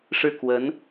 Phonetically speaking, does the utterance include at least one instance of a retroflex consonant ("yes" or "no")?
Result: yes